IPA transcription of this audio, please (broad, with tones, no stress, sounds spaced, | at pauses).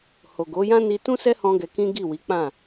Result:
h o˨ ɡ o˨˦ j ã˦ n i˧ t ũ˦ s ɛ˦ h ɔ̃˧ ɡ ɛ˧ k ĩ˦ ɡ i˦˨ w i˨˦ k͡p ã˦˨